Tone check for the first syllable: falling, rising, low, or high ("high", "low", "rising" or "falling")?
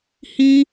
high